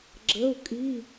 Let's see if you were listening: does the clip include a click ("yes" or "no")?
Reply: yes